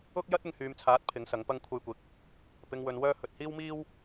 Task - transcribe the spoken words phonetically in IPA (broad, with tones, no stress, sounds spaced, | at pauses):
ʊ˥ k̚ j ɐ˥ t̚ ɪ˨ ŋ h yː˨ m t͡sʰ aː˨˥ t̚ pʰ ɪ˨˥ ŋ s ɐ˨˥ ŋ p ɐ˧ ŋ kʷʰ ɐ˧ j kʷ ɪ˨ k̚ | p ɪ˨ ŋ w ɵ˨ n w œː˧ h ɵ˨ t̚ h iː˥ w m iː˥ w